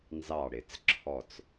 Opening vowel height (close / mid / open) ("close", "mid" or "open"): open